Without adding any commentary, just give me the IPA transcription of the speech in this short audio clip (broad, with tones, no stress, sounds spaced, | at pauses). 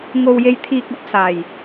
ŋ o˨ w j e˨˧ j t̪ʰ iː˨ k̚ ɐ˨˥ p̚ s aː˨˩ j